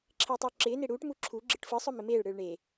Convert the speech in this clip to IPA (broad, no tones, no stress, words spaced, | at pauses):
ǁʰɪːtˤɯo̯ǁɪː neɽuːʈ muǁʰu ɡ͡ǁɯʈfɯ sˤœmɪmeːɭ ɽɯːɭɳe